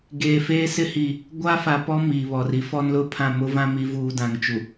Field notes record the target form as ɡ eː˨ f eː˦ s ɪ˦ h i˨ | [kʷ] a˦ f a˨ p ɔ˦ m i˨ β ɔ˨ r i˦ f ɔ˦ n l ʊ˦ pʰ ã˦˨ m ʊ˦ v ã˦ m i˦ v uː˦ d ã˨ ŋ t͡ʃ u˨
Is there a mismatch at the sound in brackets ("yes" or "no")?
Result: yes